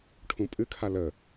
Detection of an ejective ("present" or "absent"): present